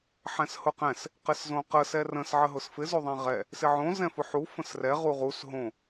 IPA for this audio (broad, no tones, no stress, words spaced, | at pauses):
ħɛ̃shʊqɛ̃s | qɪszõqə sɛrə̃s ʕəɦʊsfɪ zoðˤɛ̃ʁɛ | sɪʕõ zɛ̃fʊħu fə̃srɛ ʁuʁus ɦõ